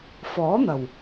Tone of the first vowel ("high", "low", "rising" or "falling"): rising